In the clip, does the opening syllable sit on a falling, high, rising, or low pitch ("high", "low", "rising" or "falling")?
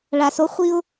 low